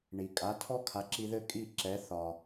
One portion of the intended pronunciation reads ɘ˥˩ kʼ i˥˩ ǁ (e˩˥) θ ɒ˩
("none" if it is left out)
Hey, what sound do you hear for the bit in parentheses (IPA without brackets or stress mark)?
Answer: ɛ˩˥